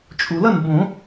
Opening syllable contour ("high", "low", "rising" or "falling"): low